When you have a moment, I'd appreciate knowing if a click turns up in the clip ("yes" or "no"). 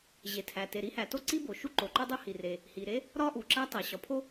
yes